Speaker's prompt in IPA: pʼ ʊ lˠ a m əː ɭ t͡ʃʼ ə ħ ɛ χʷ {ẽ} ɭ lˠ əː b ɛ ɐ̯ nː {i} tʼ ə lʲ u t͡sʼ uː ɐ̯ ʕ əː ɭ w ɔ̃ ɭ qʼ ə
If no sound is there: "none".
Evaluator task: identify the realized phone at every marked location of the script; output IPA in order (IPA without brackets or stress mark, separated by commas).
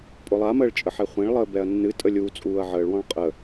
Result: ẽ, ɨ